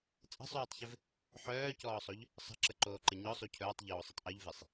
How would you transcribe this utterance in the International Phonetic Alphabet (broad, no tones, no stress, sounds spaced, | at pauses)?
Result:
t͡sʼ ə̤ sˤ yː tˤ ç ɪ v | ħ œː c ɔː sˤ o ʎ | sˤ ə̤ ǁ ə ǃ oː ǃ ə ɲ ɔ sˤ u cʰ œː tˤ ʎ oː sˤ ə tˤ ʔ o ʎ v e sˤ